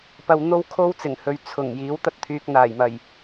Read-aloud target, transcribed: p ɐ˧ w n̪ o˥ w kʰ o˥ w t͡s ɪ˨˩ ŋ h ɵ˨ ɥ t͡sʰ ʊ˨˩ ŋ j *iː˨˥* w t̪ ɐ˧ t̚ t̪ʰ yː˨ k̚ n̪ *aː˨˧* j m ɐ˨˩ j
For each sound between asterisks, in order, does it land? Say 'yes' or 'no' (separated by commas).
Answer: yes, no